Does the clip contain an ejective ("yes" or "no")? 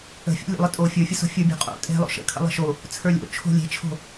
yes